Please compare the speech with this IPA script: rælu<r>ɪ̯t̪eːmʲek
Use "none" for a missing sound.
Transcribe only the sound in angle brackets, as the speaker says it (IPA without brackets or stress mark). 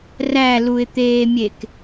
none